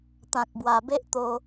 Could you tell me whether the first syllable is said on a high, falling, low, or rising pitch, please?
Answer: low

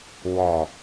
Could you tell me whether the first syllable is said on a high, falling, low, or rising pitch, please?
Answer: low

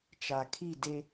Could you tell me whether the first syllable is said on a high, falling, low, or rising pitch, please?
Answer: low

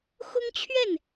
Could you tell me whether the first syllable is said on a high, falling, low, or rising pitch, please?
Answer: high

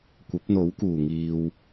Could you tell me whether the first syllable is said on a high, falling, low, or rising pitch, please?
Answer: rising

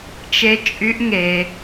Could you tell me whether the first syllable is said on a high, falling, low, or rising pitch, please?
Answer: high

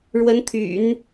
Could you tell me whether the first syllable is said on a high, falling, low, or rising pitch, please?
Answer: rising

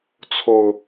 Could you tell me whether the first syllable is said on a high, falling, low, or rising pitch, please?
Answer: low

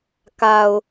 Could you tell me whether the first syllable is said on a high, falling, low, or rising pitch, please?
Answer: low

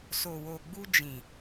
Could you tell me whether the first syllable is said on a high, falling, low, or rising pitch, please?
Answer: low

